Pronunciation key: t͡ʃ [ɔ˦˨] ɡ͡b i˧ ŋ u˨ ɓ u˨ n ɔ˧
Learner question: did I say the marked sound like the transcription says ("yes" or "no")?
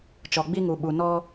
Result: no